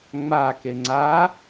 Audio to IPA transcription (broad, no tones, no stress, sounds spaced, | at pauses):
ŋ͡m a k e ŋ͡ǀ a